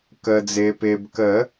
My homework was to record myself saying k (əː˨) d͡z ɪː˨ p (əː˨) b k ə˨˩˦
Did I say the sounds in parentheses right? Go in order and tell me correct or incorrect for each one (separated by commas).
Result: correct, incorrect